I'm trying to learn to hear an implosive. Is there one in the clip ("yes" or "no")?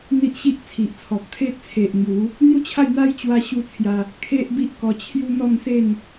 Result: no